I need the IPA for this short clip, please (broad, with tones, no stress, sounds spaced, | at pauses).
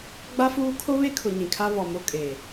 ɡ͡b a˦ f uː˦ kʰ o˦ β e˦ kʰ ʊ˨ ɲ ĩ˨ kʰ a˦ β ɔ˨ m o˦ kʼ eː˨